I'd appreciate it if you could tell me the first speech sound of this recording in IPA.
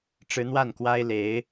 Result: ʈ͡ʂ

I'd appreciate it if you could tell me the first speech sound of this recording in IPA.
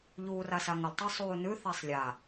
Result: ʎ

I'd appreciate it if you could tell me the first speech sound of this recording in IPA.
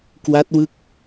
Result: k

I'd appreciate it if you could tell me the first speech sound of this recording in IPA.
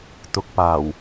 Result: t̪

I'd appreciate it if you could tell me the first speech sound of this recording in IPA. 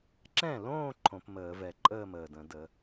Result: ǁ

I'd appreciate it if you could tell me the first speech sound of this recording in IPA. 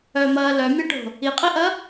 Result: œ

